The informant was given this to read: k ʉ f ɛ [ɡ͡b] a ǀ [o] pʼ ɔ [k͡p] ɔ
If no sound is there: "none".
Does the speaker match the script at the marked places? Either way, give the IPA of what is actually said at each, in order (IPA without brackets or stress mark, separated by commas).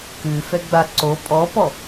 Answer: ɡ͡b, o, p